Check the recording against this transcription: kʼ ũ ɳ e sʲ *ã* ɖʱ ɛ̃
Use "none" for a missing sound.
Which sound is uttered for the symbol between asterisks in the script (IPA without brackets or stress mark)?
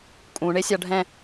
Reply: a